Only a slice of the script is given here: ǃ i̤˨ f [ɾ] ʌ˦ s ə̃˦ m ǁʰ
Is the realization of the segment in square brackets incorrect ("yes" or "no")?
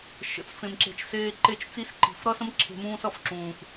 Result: no